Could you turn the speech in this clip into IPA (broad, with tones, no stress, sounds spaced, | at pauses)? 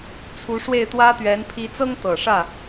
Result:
t͡sʰ u˧˥ ʂ w e˥˩ ɪ̯ t̪ w ä˥ t̪ ɥ ɛ˧˥ n pʰ i˧˥ t͡s ɤ˥ ŋ t̪ ɤ˨˩ ʂ ä˥˩